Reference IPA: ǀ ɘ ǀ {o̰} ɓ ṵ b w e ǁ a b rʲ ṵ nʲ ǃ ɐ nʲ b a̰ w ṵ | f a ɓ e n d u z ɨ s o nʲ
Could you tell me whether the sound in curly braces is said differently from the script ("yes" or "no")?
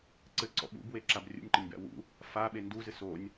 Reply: yes